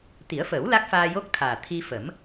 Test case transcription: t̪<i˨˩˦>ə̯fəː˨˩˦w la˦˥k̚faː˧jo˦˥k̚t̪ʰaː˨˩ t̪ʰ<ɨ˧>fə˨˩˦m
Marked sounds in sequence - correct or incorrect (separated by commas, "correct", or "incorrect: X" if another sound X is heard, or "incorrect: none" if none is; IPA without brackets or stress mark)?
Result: correct, incorrect: i˧